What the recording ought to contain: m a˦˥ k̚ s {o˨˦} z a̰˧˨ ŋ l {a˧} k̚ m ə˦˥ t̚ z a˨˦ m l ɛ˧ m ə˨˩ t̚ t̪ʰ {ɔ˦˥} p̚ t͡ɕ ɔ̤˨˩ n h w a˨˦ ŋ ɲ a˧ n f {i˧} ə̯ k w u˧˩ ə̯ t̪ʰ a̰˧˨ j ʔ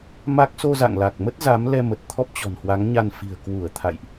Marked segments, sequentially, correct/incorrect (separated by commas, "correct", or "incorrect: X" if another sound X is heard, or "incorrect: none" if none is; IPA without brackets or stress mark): incorrect: o˧, incorrect: a˨˩, correct, incorrect: i̤˨˩